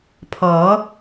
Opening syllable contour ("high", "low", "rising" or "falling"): rising